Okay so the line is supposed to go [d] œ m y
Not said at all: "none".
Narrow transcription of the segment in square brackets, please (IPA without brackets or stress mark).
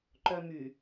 ǃ